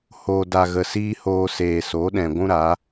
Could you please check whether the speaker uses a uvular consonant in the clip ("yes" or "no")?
no